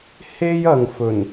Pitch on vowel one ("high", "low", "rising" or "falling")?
high